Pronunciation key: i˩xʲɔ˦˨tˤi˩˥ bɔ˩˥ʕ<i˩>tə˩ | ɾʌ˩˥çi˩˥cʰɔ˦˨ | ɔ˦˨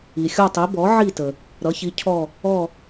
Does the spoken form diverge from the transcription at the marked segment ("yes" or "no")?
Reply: yes